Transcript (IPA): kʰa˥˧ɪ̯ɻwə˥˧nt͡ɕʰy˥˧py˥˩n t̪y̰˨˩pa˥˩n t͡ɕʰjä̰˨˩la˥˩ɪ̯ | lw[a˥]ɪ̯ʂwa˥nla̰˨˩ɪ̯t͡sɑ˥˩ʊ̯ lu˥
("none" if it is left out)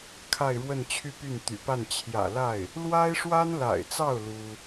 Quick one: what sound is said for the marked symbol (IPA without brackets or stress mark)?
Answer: a˥